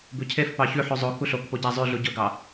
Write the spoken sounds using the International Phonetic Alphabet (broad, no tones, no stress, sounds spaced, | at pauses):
b ʉ cʰ e f p ɑ ç ʉ ħ ʉ zˤ o k u ɬ o k p o ɟ æ zˤ ʉ ɮ u ɟ ɵ ɡ ɑ